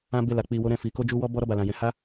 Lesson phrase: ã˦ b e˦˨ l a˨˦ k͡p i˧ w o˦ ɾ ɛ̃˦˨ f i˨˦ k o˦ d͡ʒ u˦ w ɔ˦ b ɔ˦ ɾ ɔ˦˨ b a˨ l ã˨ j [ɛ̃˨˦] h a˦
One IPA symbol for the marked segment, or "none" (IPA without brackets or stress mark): ɛ̃˨˦